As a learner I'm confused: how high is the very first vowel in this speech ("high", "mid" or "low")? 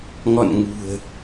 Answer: mid